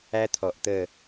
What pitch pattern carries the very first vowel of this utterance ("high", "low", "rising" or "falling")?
high